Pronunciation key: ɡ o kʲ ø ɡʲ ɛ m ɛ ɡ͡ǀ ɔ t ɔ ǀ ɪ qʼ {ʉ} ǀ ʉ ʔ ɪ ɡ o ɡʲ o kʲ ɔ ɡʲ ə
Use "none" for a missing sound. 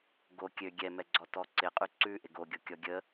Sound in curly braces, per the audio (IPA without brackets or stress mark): ʉ